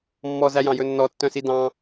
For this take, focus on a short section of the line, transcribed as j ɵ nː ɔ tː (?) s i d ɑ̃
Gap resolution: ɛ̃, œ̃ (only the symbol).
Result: œ̃